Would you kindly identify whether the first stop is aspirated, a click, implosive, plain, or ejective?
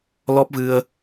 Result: plain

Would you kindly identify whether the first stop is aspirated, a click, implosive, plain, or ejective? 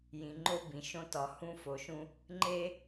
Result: click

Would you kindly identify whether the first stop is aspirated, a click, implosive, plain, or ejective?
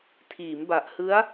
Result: aspirated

